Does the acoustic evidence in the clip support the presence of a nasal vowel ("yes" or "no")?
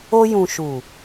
yes